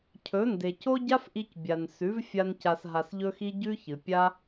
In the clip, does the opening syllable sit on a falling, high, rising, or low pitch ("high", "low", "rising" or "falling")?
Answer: rising